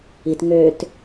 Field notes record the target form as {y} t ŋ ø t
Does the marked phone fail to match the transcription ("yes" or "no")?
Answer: yes